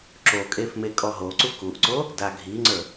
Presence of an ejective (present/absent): present